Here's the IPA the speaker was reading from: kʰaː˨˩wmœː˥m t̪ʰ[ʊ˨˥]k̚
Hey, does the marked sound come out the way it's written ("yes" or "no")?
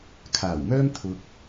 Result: no